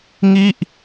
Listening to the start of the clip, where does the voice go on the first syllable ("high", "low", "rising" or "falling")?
falling